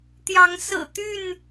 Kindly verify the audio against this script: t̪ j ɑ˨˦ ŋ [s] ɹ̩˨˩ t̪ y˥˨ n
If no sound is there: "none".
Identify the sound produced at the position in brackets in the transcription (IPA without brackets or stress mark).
s